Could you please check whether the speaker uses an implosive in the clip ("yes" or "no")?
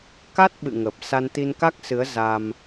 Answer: yes